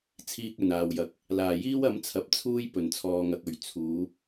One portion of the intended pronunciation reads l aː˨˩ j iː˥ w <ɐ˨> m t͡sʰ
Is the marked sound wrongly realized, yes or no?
yes